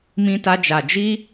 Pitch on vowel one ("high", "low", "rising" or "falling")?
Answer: high